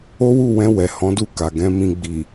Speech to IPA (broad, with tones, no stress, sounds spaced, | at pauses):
o˦ w u˦˨ w ɛ̃˧ w ɛ˨ h ɔ̃˨˦ d u˦˨ k a˨ ɡ ɛ̃˧ m ĩ˧ ɡ͡b i˨